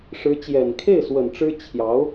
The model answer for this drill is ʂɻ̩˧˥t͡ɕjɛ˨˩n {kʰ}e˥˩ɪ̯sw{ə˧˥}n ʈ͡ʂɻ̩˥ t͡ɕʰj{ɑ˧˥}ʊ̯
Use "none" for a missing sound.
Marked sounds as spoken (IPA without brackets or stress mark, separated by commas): kʰ, ə˨˩, ɑ˧˥